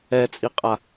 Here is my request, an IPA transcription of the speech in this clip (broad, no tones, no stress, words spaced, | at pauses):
ɛt͡sʼiqʼa